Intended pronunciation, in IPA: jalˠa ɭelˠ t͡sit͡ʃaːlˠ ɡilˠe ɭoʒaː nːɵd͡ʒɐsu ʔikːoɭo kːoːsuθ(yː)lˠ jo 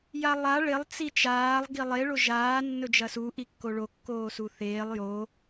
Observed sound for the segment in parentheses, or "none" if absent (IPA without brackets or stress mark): eː